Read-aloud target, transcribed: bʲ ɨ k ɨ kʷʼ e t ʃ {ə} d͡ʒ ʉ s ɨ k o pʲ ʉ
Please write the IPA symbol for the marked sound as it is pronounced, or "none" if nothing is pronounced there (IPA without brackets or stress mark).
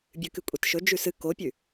ɵ